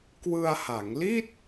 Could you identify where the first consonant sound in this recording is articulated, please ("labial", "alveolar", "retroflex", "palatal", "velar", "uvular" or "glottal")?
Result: velar